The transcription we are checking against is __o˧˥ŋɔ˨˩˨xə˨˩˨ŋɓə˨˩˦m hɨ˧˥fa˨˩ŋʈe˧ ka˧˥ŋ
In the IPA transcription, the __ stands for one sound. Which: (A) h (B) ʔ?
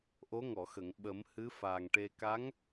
B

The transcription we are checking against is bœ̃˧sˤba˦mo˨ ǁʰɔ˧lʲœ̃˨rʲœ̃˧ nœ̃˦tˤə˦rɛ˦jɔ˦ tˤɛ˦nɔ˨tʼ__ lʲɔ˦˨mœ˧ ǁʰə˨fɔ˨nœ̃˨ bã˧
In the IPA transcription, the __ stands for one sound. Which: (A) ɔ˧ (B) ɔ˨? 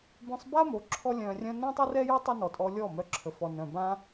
A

